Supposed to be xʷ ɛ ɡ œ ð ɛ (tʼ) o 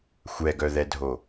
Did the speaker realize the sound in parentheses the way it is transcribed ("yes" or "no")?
no